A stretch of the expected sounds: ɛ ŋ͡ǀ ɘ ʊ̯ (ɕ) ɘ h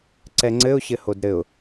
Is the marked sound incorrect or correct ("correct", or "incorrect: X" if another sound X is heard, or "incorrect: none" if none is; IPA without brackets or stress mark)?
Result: correct